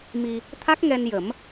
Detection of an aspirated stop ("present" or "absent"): present